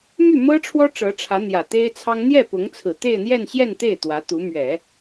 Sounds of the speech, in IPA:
m y˥˩ m ɤ˥ ʈ͡ʂʰ w ɔ˥ ʈ͡ʂ ɤ˧˥ ʈ͡ʂʰ ä˧˥ n̪ j ä˨˩ t̪ e˥ ɪ̯ t͡sʰ ɑ˥ ŋ n̪ j ɛ˥˩ p ʊ˧˥ ŋ t͡sʰ ɹ̩˨˩ t̪ e˥˧ ɪ̯ n̪ j ɛ˥˧ n ɕ j ɛ˥˧ n t̪ e˥˩ ɪ̯ t̪ w ä˧˥ t̪ u˧˥ m ɥ ɛ˨˩˦

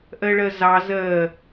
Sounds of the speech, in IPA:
ʔ ɜ ɭ ɜ z ɑ z ɜ

